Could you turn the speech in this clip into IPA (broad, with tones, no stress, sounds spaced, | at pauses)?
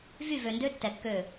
v y˦˨ v ø˨ n d ø˦ tː ɛ˨ kː ø˦˨